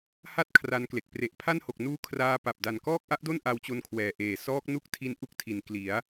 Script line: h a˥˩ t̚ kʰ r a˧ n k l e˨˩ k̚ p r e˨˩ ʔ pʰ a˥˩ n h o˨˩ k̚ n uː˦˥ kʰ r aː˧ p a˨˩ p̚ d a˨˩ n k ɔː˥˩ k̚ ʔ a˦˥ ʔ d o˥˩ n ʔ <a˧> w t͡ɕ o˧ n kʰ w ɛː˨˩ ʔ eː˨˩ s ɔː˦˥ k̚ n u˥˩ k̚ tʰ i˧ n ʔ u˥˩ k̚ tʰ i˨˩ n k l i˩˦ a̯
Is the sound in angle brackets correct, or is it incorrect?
correct